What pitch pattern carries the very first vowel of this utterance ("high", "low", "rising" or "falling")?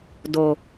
low